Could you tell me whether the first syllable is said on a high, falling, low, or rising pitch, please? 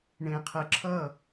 low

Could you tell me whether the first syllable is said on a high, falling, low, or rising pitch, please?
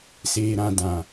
low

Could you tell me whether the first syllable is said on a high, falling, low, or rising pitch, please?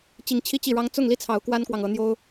rising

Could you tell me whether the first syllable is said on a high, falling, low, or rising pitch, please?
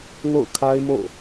falling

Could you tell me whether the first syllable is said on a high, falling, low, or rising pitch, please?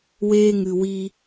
high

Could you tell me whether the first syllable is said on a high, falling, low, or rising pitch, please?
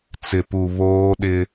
low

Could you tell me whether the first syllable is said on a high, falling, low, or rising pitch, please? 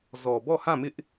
low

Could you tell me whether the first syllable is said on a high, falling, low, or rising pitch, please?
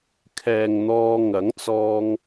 low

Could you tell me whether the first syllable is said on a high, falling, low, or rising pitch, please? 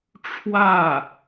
falling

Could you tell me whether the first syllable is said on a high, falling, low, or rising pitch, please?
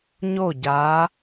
falling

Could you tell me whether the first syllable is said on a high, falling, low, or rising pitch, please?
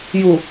low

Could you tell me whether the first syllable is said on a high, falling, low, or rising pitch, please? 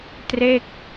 falling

